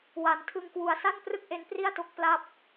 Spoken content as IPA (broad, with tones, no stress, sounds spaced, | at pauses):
w a˩˦ n tʰ ɯ˧ ŋ k w u˨˩ a̯ s a˥˩ n p r ɯ˥˩ k̚ ʔ e˦˥ n p r i˥˩ a̯ t o˦˥ k̚ p l a˦˥ p̚